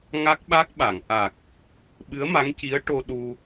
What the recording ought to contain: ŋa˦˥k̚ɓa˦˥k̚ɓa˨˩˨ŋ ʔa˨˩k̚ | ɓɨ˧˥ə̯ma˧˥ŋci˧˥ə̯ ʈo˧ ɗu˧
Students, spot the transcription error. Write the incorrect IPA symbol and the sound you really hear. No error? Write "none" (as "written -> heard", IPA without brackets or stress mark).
none